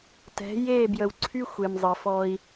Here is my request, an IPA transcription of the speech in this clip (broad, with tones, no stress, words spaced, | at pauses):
tɛ̤˨˦ je˦˨ bjə˨wǀʰy˦ xʷe˨mzˤə˨fɔ˦i̯